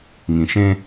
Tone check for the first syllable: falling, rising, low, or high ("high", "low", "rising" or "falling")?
low